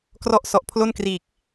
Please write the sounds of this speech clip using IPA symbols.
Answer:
krɔ˦˥ʔsɔ˨˩ʔ pʰlo˥˩nkriː˨˩k̚

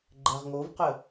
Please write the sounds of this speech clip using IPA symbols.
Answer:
ɡ͡ǃɛʁŋovqə

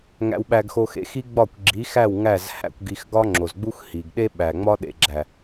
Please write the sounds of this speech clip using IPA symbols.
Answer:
ŋæ̰˧wɓæ˧ɡxo˧xḛ˨˦x i˦ ɡ͡bɒ˦˨kʷɡ͡ǁi˨˦xæ˦˨w ŋæ˦˨zhæ̰˧kʷ ɡi˧x ɡɒ˦ŋ͡ǁo˨zɡ͡bu˦x hi˨ɡ ɗe˦ɓæ˨ŋ͡mɒ˦ ɗḛ˨ɡ͡ǁæ˨

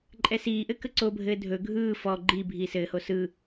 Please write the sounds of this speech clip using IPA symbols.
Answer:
ǃʼɛsiːʔɘ kəǀobʱɘː dʱɵ ɡʱɯː fɔ ɡ͡ǃi bʱiːsɘːho sɯ

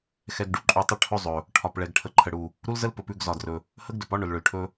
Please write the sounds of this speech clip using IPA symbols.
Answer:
xɛ˨ɡɖu˨ǃʼu˨tˤə˦˨ ʈʰɵ˦zˤɵ˨ | ʈʰɒ˨pɭɛ˨ɡ ʈʰə˨ǃʰə˨ɽu˨ | ɾu˦lzə˦l pɵ˨pʉ˦˨ɡzɒ˨drɵ˨ | hə˦ɡdɵ˨pɒ˦ ɳʊ˨lɭɵ˨lʈʰɵ˦

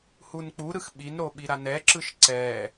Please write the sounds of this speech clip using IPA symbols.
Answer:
hunk͡puɾɯx ɓinɾo ɓiɾanɛǁɯʃ ǀɛ

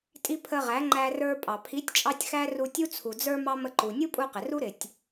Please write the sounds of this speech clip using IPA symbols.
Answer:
tʼi˧ pʰə˧ʁæ˨˦ŋ͡ǃæ˧ rə˞˧pʼɑ˨ pʰi˨˦tʲt͡ʃʼɑ˧tʲ xæ˦ru˧tʲu˦ t͡sʰu˨d͡zə˞˧ mɑ˦mə˧ǃu˨ nʲu˦pʼu˧qɪ˨ ru˦ɾɪ˨tʲ

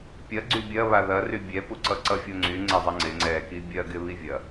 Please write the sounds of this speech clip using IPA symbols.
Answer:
pʲɐ ɡ͡ǀybʲɐ βaðɐry bʲɛpuǀʌ ǀʌfʲoŋ͡ǀy ŋ͡ǀɛzˤɐŋ͡ǀɪ ŋ͡ǀɛki bʲɐɡɪ βivʲɐ

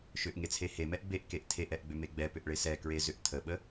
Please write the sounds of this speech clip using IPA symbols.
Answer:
ʃʏʔŋet͡sʰe hemɛʔ beʔkeʔ tʰeʔɛʔɡ͡bʏme ɡ͡bɛpʏʔɭe sɛkɹezʏʔ tʰəɓə

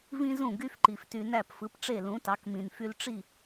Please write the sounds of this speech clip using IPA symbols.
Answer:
vĩ˥ zũ˥˩ɡy˥f ǃi˩fty˧ næ˥˩pfɯ˩˥p ʈ͡ʂe˥˩lũ˩˥tɑ˩˥kmĩ˩n fy˧lʈ͡ʂi˥˩

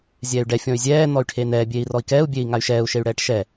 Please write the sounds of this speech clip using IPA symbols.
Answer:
zʲɛːy̯ɖɛ fʲɔ̃y̯zʲɛː nɔy̯ʈʰeːnɛː bʲeːi̯rɔi̯kɛːu̯ bʲeːi̯ŋay̯ʃɛːu̯ ʃey̯ɽɛːʈʃɛ

